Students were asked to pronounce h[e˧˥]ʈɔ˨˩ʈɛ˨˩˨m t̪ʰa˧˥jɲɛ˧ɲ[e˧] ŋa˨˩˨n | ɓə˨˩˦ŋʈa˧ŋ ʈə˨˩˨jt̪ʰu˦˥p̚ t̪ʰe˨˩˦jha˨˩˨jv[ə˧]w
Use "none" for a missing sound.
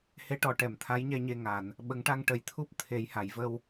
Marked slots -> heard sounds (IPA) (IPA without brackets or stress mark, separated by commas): e˧˥, e˧, ə˧